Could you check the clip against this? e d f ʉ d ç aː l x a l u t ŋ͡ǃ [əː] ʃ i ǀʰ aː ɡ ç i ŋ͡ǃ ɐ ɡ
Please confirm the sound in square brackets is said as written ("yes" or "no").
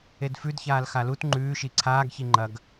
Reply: no